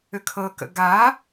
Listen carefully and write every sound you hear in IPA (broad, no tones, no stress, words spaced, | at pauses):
ʏkʰɤkə̰ ɡa